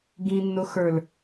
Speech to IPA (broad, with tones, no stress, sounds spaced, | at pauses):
ɡ ĩ˦ nː ʊ˦ x ə˞˨ l